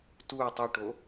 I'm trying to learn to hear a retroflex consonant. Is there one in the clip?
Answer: yes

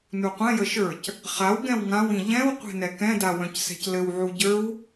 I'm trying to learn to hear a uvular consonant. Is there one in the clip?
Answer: yes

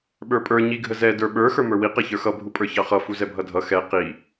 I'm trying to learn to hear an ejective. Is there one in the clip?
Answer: yes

